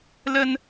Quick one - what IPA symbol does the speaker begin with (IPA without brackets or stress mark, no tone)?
l